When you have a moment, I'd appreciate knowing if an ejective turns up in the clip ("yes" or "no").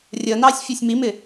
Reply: no